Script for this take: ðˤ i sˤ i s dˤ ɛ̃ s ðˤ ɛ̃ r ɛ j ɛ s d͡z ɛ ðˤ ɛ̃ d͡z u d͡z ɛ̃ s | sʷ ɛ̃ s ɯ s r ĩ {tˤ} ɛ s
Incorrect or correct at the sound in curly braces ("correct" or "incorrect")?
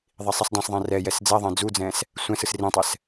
correct